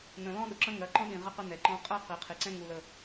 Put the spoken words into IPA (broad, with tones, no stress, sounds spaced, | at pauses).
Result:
n ə̃˨ l ɔ̃˦ ɗ ɵ˨ ǁ ə̃˦ ŋ ɜ˨˦ ǃ ɔ̃˦ ɗ ĩ˨ ʁ ə˦ q ə˦ n ɛ˨ ǃ ɔ̃˦ qʼ ɜ˦ q i˨ qʰ i˨ ǀ ɛ̃˦ ŋ u˨ l ə˨